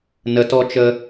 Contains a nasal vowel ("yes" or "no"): no